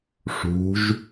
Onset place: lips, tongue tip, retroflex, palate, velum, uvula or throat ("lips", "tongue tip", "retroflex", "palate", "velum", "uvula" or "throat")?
retroflex